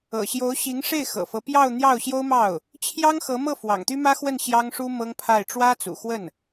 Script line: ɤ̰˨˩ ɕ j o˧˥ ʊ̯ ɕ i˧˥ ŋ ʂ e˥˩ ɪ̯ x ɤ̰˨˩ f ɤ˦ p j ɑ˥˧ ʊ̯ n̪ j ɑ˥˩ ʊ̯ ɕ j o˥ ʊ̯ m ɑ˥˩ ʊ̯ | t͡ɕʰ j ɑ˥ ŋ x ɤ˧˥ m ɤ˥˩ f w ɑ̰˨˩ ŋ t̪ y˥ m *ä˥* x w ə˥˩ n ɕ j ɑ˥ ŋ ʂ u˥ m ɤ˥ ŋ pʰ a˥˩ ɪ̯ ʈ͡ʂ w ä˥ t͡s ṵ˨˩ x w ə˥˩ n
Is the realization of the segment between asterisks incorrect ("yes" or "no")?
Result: no